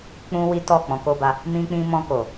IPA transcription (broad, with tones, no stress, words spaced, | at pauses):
k͡pũ˦ wi˦tɔ˦˨ k͡pɔ̃˨ko˧ba˧ | mĩ˧k͡pĩ˧mɔ̃˧ko˨